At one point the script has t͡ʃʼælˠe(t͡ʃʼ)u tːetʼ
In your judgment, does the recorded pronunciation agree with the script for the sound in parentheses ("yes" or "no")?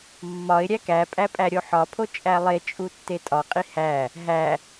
yes